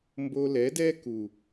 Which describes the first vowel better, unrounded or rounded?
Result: rounded